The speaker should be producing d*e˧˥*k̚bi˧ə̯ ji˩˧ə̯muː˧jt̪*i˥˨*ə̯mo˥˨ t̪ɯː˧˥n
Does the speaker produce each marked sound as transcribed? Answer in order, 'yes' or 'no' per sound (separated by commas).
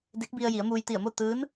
yes, no